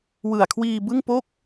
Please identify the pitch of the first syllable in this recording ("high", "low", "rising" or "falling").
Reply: low